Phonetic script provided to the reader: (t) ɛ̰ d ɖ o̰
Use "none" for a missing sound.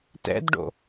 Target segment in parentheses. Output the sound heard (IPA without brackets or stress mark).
t